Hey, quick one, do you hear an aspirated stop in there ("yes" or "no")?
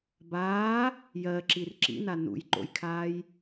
yes